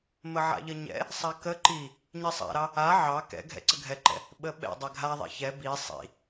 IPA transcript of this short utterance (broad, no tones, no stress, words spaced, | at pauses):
məʕa̰ʎəɲɛ̰ | sˤakə ǃi | ɲisˤa̰ɾɑ | a ʕɑ kɛ̰ ɡʱɛ̰ǀəɡʱɛǃɛ̰ | ɓəɓɛ̰ dˤɛɡʱa ðˤɛ̰çɛ bi sˤḭ